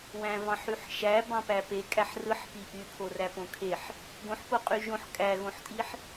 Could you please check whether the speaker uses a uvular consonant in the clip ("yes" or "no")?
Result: yes